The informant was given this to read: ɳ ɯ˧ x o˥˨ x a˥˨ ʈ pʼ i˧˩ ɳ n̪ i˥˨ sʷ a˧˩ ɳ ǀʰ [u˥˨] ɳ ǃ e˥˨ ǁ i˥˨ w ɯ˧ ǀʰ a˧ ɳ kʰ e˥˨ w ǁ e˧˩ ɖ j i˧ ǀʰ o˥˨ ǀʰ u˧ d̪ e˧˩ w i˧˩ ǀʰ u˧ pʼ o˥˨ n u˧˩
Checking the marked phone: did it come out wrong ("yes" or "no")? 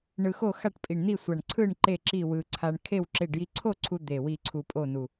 yes